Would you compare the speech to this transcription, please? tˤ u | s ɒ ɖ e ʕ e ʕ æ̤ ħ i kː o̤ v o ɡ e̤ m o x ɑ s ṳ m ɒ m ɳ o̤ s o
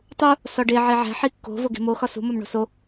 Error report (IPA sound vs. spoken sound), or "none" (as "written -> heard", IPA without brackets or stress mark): ɑ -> ɒ